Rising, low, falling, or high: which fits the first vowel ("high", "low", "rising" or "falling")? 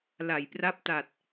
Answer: low